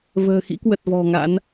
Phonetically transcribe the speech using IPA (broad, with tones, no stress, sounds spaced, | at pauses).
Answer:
v ə̤ː˨˩ x ḭ˧˥ k w ə˨˩ t̚ v ɔ̤˨˩ ŋ a̰˧˥ n